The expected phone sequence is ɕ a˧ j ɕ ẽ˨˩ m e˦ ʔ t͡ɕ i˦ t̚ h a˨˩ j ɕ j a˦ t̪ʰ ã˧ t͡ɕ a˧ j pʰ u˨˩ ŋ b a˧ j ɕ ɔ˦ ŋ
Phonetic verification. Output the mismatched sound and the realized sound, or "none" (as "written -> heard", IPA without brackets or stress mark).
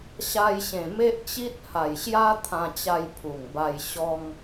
none